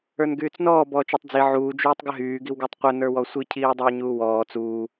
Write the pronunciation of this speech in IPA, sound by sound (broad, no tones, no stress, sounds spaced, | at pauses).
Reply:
ə˞ n ɡ yː t͡s n ɔː b ɔː t͡ʃ ɔ tˤ d͡z i ʕ uː d͡ʒ yː tˤ ɡ ə ɦ yː ɡ i w ɡ ə˞ tˤ qʷ ə n ə˞ w ɔ sʷ i cʰ iː dˤ iː ɲ uː w ɔː t͡s uː